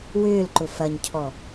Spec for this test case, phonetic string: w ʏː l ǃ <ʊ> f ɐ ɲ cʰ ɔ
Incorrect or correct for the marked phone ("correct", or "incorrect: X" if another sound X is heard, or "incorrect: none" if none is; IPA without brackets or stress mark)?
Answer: correct